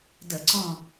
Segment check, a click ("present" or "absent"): present